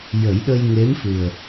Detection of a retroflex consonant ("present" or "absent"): absent